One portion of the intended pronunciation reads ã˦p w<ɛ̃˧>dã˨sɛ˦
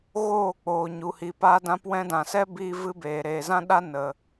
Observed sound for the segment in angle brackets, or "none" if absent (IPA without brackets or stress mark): ɛ̃˧